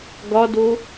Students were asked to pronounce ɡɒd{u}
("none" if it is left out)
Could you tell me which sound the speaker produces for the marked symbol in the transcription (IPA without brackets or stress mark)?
o